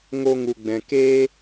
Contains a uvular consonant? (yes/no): no